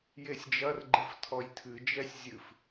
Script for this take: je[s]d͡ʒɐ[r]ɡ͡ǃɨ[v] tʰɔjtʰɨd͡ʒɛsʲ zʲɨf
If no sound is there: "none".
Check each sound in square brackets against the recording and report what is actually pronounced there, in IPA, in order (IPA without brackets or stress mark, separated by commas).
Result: sʲ, r, f